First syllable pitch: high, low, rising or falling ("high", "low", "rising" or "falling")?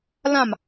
falling